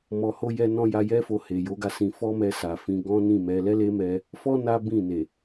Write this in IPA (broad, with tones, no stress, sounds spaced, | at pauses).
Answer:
m ɔ˨ h o˧ j ɛ˧ n ɔ̃˧ j a˧ j ɛ˦ f o˧ h e˨ j o˨˦ ɡ a˧ s ĩ˧ f ɔ˦ m ɛ˧ s a˨ f ĩ˧ ɡ ɔ̃˦ n ĩ˦˨ m ɛ˧ l ɛ˦ l e˦ m ɛ˧ | f ɔ˧ n a˦ b ĩ˦˨ n e˨